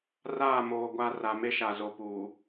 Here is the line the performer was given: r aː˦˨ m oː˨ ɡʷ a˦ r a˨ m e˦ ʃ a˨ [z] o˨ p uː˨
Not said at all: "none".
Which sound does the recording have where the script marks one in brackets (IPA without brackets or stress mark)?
z